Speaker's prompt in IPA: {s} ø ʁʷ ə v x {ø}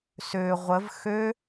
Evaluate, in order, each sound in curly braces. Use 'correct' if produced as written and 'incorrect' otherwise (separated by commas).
correct, correct